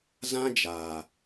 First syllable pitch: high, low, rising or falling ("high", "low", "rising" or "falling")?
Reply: high